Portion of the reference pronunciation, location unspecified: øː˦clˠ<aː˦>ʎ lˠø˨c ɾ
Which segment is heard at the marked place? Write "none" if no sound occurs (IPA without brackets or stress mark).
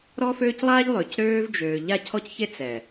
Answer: aː˦